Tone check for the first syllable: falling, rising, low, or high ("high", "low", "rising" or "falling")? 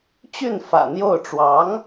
falling